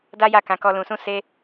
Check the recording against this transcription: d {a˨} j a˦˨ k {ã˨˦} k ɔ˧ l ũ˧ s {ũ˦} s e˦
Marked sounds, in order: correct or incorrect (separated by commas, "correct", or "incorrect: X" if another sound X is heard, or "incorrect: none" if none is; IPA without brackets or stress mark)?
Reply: incorrect: a˦, correct, correct